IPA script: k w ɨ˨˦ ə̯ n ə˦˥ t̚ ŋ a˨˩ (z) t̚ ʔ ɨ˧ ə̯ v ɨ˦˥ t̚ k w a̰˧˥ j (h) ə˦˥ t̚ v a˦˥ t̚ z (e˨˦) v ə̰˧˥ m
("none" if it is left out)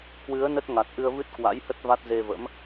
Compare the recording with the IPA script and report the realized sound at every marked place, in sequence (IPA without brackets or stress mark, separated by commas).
none, h, e˧